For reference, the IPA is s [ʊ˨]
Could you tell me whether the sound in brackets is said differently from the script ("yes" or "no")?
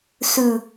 yes